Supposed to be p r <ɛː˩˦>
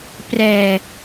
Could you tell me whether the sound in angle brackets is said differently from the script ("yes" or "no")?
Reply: yes